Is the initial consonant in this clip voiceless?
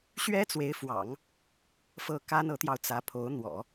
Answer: yes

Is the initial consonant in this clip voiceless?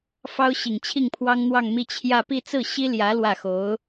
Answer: yes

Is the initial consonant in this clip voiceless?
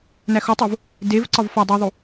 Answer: no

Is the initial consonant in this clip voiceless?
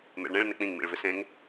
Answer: no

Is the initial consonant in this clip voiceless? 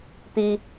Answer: yes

